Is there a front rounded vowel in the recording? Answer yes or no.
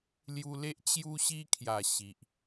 no